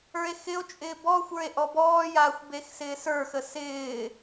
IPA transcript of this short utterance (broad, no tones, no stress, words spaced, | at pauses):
ə˞e̯xɪo̯t͡ʃʼɪː bɔxʷə˞e̯ ʔɔbɔːjaːxʷ bexsɪːsə˞xə sɪː